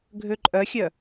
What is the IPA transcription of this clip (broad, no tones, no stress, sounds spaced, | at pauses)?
ɡʱ ø ǃʼ œ xʲ œ